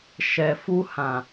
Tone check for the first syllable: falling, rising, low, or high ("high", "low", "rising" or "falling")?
low